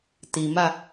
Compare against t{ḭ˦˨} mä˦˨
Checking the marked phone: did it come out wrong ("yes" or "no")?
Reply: yes